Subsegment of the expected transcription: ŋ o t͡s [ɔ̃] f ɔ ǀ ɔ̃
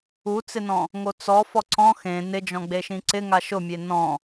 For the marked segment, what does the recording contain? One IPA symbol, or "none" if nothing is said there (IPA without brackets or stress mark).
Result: ɔ